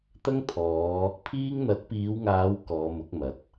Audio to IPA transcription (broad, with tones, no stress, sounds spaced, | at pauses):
t̪ ɐ˥ ŋ t̪ʰ ɔː˨˧ | pʰ iː˥ ŋ n̪ ɐ˨˥ t̚ p iː˨˧ w ŋ aː˨˧ w k ɔː˨˧ m ʊ˨˥ k̚ m ɐ˨˥ t̚